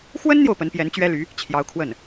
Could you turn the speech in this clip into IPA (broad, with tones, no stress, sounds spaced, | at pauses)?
x w ə˥ n n̪ j o˨ ʊ̯ p ə˧˥ n p j ɛ˧˥ n t͡ɕ ɥ ɛ˥ l y˧˥ | t͡ɕʰ j ɑ˧˥ ʊ̯ kʰ w ə˥˩ n